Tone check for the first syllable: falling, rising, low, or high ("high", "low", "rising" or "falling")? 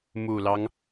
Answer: low